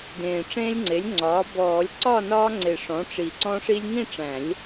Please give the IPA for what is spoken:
d ẽː˨˩ ʈ͡ʂ ẽː˦ lʲ ŋ͡ǀ e˩˥ lʲ ŋ͡ǀ ɒː˩˥ b ɔː˨˩˦ lʲ ǀ ɒ˥˨ n ɒː˦ ŋ͡ǀ e˨˩ ʂ ɔ̃˩˥ ʈ͡ʂ i˨˩ ǀ ɔ̃˦ ʂ i˦ lʲ ŋ ĩ˥˨ ʈ͡ʂ æ̃˨˩˦ lʲ

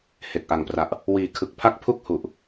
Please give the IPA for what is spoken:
h e˨˩ k̚ ʔ a˨˩ ŋ p r a˨˩ ʔ | w iː˨˩ kʰ ɯ˨˩ k̚ pʰ a˦˥ k̚ pʰ u˥˩ k̚ h u˨˩ ʔ

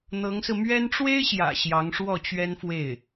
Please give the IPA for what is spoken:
n̪ ɤ˧˥ ŋ s ɹ̩˧ m ɥ ɛ˥ n ʈ͡ʂ w e˥ ɪ̯ ɕ j ä̰˨˩ ɕ j ɑ˧˥ ŋ ʂ w ɔ˥˩ t͡ɕ ɥ ɛ˥ n f w e˥˩ ɪ̯

